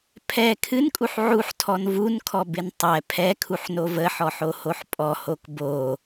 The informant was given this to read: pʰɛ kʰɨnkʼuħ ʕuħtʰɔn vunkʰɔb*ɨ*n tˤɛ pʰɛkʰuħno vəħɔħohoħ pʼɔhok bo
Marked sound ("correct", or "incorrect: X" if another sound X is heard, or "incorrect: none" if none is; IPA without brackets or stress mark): incorrect: ɪ